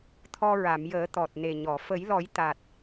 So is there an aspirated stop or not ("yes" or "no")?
yes